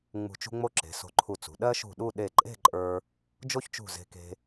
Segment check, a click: present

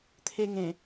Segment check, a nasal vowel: present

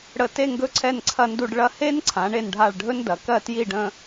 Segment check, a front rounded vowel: absent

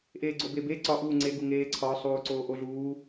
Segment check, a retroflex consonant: absent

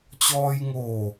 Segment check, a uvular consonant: absent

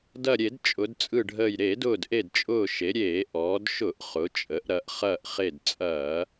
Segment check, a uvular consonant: present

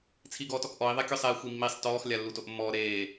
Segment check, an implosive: absent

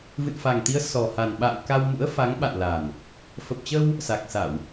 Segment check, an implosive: present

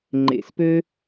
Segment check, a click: present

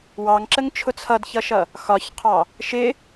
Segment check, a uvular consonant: present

